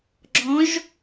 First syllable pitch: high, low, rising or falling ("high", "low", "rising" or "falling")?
rising